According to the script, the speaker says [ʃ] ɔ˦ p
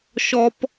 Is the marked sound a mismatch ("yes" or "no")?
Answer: no